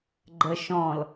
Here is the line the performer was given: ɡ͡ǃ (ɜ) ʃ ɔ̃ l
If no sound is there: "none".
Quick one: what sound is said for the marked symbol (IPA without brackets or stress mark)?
ɜ